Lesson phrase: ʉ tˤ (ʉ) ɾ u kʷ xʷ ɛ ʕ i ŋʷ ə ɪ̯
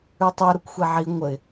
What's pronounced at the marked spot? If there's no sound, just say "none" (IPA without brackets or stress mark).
ʉ